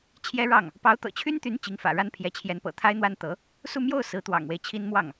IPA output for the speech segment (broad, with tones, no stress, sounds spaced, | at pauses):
t͡ɕʰ j ɛ˥ ɻ ɑ˥˩ ŋ | p ɑ˧˥ ʊ̯ t̪ ɤ̰˨˩ t͡ɕʰ y˥ n t̪ y˧˥ n t͡ɕ i˧˥ ŋ f ä̰˨˩ ɻ a˥ n pʰ j ɛ˧˥ t͡ɕʰ j ɛ˧˥ n p ɤ̰˨˩ t̪ʰ a˥ ɪ̯ n̪ w a˥ n t̪ ɤ˧˥ | s u˥˧ m j o˥˩ ʊ̯ s ɹ̩˧˥ t̪ w ɑ̰˨˩ ŋ w e˦ ɪ̯ t͡ɕʰ i˥ n m w ɑ˥˩ ŋ